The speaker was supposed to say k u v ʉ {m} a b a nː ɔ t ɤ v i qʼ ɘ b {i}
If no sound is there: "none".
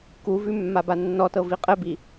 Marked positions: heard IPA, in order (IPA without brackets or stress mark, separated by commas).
mː, i